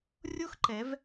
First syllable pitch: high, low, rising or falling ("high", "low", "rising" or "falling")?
falling